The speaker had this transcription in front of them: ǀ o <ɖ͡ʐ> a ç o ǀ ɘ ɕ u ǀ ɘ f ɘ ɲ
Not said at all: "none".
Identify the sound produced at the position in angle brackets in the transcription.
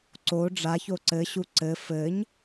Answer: ɖ͡ʐ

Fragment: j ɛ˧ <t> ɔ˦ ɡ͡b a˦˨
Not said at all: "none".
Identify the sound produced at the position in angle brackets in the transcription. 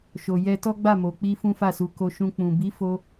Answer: t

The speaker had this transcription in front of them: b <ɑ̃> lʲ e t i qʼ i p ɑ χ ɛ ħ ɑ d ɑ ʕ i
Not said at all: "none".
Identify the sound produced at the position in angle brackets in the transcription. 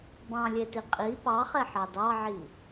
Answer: ɑ̃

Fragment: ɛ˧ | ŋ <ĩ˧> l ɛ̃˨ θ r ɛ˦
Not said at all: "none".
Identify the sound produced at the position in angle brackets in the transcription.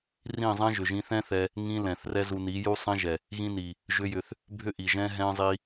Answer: ĩ˦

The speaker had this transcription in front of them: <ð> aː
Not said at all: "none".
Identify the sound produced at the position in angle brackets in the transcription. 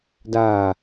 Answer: d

